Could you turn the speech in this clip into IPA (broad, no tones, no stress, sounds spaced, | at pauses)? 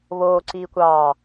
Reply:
β oː ǀ iː kʷ ɑː